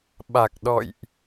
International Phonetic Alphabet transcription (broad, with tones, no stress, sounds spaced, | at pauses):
ɓ a˨˩ k̚ ɗ ɔ̰˧˨ j ʔ